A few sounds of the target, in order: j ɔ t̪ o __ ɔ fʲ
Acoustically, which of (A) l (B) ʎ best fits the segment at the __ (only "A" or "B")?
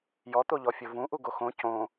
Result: B